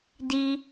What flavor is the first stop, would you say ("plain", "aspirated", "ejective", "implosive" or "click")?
plain